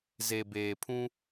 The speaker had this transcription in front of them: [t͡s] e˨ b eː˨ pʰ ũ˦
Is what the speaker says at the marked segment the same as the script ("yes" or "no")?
no